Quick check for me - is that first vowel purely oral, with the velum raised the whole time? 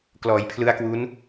yes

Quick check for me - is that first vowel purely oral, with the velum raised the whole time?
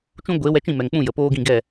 no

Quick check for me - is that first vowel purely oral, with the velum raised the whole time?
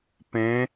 no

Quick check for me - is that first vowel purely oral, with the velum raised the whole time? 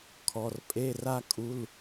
yes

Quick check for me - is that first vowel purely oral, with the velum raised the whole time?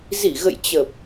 yes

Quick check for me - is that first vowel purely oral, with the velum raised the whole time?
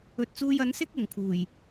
yes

